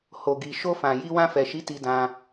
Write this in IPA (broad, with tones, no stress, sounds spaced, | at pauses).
h o˨ ɡ i˨ ʃ o˧ f ã˨ j i˧ w ã˧ f ɛ˨ ʃ i˨˦ t i˧ d ã˧